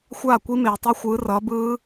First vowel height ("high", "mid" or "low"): low